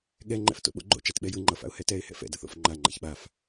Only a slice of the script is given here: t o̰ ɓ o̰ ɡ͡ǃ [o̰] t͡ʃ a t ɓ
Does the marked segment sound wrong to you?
no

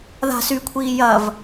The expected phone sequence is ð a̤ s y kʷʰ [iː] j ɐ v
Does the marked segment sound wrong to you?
no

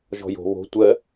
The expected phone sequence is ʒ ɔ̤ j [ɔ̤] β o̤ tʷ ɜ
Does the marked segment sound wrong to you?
yes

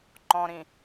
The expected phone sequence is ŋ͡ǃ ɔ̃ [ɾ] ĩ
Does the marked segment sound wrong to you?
no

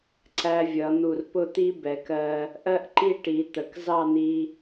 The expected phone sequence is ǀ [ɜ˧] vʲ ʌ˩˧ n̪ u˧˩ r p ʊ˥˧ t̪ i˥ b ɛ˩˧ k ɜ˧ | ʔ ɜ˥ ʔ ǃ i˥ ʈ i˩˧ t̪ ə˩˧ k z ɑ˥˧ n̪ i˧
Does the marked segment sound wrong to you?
yes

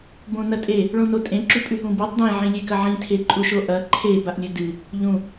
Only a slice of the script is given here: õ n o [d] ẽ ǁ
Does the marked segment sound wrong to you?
yes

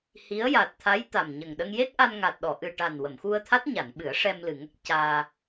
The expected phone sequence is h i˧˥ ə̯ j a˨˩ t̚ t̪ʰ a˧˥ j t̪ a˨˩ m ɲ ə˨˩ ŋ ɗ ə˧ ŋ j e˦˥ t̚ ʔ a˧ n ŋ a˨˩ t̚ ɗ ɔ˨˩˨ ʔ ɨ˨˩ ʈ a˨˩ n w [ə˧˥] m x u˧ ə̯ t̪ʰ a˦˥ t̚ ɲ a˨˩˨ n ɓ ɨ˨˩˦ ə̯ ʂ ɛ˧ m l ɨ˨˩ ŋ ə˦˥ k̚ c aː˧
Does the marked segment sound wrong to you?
yes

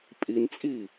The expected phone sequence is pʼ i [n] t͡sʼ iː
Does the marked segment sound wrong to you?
no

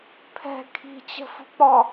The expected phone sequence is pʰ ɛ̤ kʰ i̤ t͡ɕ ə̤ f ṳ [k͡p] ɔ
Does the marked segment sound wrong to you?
no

